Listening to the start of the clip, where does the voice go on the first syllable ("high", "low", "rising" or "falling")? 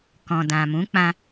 low